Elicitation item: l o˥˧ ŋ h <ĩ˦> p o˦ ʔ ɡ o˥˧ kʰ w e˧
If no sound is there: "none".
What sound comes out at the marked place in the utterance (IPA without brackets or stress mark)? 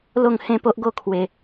ẽ˦